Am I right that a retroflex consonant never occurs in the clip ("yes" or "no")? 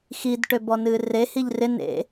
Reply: no